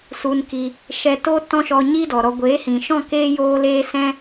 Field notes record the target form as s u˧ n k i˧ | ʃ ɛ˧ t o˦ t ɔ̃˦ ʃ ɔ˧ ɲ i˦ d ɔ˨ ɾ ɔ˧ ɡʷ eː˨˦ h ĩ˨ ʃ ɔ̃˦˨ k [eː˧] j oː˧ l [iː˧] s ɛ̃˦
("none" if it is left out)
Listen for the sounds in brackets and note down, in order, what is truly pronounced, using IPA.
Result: eː˧, eː˧

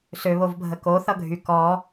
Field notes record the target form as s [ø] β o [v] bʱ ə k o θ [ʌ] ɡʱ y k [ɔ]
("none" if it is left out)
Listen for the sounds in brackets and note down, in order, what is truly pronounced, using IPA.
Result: ø, v, ʌ, ɔ

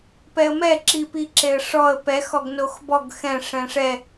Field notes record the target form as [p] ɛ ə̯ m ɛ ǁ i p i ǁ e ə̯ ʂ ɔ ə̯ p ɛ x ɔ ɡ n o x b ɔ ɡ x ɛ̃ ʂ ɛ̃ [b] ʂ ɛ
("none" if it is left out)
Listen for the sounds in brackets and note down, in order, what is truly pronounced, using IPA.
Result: p, none

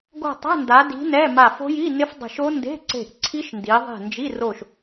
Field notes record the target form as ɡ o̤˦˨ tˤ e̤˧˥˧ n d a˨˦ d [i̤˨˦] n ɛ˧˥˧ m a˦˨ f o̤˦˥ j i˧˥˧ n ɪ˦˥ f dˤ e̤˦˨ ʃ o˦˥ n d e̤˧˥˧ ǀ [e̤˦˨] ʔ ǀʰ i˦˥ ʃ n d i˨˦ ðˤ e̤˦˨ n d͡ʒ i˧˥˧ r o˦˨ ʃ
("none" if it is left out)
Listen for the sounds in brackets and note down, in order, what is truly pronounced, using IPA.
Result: i̤˨˦, e̤˦˨

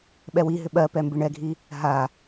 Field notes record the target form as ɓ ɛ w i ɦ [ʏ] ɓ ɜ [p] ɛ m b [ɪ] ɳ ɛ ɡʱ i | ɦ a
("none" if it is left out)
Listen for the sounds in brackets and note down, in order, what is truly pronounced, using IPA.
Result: ʏ, p, ɪ

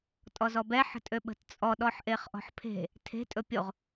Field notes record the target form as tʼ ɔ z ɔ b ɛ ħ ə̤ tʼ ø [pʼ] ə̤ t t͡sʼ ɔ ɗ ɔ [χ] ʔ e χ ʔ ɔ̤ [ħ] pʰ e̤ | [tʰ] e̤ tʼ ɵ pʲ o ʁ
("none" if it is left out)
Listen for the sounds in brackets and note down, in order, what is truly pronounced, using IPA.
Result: ɓ, ħ, ħ, tʰ

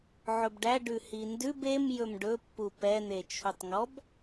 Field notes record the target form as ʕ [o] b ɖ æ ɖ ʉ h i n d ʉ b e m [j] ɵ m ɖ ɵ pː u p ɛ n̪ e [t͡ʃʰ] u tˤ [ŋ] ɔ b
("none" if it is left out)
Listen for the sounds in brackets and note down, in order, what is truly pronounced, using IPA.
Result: ɵ, j, t͡ʃʰ, ŋ

